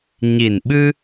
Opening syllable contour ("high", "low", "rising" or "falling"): low